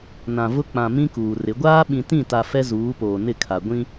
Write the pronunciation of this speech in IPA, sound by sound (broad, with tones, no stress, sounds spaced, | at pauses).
n ã˨ v ʊ˦ k͡p ã˨ m ĩ˦ k uː˨ r ɪ˨˦ ɡʷ aː˦ ɓ ĩ˨ t ĩ˦˨ t a˨ f ɛ˦ z uː˨˦ p oː˨ n ɪ˦˨ kʰ a˨ ɡʷ ĩ˦